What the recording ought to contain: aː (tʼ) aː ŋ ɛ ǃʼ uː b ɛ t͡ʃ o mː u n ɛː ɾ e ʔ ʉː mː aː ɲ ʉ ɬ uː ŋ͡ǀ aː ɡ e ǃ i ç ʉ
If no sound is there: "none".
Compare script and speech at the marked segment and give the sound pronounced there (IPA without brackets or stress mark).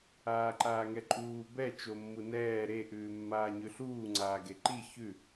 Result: ǃ